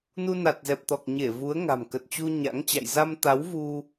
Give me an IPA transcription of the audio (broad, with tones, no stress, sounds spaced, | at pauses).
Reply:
n u˧ n a˨˩ t̚ z ɛ˨˩ p̚ t̪ ɔ˨˩ k̚ ɲ e˧˩ v u˨˦ ə̯ ŋ a̤˨˩ m k ə˨˩ t̚ t͡ɕ u˧ ɲ a̰˧˥ ŋ t͡ɕ a̰˧˨ j z a˧ m t̪ a˨˦ w v u˧